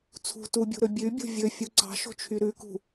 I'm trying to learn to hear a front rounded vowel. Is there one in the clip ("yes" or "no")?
yes